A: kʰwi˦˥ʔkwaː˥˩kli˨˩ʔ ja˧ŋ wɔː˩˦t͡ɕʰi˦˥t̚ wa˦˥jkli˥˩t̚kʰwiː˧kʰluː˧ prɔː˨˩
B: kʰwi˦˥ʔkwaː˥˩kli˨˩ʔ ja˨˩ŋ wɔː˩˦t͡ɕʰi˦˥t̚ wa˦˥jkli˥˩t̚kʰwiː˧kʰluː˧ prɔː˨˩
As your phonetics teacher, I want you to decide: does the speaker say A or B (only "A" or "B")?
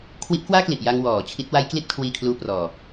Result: A